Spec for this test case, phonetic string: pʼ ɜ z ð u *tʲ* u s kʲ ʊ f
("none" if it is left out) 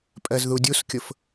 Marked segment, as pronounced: dʲ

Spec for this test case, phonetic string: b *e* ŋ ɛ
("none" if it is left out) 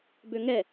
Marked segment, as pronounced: ø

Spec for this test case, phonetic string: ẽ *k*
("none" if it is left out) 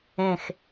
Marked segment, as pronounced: x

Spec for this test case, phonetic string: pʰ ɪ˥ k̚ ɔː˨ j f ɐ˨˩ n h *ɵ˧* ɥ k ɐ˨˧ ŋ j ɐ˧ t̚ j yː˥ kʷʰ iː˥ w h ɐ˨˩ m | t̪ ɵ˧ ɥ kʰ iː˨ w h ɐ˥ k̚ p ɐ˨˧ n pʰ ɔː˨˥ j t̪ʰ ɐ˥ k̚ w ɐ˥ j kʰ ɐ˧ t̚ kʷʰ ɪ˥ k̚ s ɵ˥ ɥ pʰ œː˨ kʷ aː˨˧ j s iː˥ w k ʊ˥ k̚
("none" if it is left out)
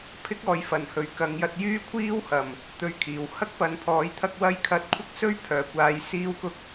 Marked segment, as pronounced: ɵ˨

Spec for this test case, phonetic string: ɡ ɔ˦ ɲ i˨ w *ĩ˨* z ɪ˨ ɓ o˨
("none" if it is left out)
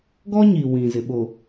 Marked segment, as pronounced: ĩ˨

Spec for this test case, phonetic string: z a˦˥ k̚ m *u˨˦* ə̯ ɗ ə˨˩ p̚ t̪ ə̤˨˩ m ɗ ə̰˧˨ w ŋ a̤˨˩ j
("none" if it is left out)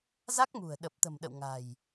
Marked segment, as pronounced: ṳ˨˩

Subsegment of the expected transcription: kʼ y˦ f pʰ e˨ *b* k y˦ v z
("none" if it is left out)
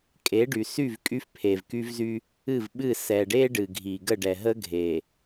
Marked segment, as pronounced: v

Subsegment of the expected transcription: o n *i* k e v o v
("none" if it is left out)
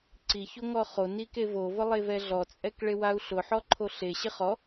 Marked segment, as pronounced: i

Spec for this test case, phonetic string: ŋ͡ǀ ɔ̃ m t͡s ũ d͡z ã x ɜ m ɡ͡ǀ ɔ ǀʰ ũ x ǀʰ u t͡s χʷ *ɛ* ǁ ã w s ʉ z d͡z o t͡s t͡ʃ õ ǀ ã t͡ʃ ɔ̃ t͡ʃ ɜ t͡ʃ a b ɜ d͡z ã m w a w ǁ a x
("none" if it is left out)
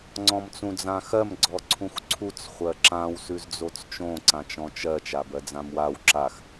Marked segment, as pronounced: ɜ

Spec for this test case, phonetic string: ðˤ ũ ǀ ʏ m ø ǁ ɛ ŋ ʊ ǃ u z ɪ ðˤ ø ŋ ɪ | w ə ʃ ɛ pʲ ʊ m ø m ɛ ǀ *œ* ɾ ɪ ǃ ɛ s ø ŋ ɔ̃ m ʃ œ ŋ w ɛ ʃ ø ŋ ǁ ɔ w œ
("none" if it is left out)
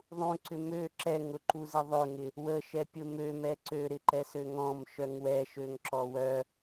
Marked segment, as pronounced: ø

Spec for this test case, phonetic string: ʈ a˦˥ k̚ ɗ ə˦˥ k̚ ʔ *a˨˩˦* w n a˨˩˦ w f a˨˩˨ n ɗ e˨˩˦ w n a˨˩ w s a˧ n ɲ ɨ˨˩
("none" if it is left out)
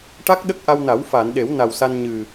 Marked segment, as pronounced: a˧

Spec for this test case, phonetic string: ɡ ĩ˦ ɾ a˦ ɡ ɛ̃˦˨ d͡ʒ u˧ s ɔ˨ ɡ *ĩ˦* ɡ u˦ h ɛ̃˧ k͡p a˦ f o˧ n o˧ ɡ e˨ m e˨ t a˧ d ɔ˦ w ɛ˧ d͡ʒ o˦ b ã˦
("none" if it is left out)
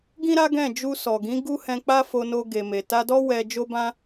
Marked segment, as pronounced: ĩ˨˦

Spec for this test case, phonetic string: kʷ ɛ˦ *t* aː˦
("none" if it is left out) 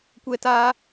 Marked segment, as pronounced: t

